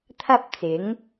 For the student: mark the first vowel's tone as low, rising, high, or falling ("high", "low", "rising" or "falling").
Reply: high